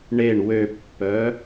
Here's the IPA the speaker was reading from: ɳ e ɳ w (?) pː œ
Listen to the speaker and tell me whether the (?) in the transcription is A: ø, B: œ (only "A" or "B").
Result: A